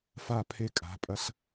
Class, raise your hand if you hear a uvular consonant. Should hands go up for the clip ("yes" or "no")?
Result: no